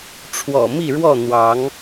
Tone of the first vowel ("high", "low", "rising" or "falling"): low